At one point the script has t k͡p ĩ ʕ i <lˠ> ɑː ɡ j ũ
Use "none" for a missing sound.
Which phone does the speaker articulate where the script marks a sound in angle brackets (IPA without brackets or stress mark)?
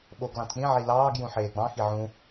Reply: l